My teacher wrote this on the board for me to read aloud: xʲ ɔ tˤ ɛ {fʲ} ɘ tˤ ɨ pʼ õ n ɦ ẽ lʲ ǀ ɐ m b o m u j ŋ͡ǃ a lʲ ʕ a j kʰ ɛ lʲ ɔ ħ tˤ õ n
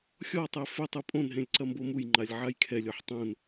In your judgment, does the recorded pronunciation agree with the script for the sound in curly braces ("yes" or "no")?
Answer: no